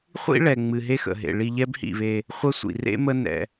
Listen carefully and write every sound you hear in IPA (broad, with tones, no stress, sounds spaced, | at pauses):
χʷ ḭ˥ ɭ ɛ˩ ŋ͡m ɨ˩ ɦ e˦ x ə̰˩ ɦ ḛ˩ ɭ i˨ ʎ ɛ˦ b h ḭ˩ β e˨ | χʷ ə˦ sʷ ḭ˩ r ḛ˥ m ə˦ n ɛ̰˩